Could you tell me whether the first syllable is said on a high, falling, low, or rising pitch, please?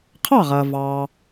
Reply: falling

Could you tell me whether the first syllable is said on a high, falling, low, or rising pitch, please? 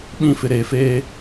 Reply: falling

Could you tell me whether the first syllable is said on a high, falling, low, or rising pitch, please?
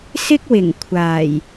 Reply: high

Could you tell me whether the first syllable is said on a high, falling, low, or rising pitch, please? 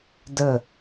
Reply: falling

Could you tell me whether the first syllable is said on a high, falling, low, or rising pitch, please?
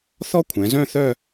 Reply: high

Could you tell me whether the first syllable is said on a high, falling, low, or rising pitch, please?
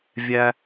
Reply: high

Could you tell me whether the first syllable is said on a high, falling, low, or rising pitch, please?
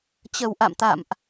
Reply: low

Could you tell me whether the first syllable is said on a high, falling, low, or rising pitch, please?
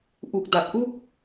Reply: low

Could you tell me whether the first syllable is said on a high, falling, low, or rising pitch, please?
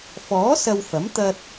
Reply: rising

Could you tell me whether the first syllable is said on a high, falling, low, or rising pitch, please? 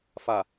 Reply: low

